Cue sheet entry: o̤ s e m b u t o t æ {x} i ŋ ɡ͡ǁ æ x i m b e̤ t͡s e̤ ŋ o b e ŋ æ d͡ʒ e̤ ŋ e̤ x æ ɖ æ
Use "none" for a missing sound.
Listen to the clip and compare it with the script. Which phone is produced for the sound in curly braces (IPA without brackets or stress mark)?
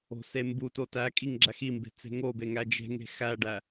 kʼ